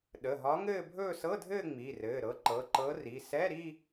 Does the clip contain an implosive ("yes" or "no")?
yes